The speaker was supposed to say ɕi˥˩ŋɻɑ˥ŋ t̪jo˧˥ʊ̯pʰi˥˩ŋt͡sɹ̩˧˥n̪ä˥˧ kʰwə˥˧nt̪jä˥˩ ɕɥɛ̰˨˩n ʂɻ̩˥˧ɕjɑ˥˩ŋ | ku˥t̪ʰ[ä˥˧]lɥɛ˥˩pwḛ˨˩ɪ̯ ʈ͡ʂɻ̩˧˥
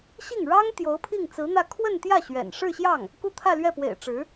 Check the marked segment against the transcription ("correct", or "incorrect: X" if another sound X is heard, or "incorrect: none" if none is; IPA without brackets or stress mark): correct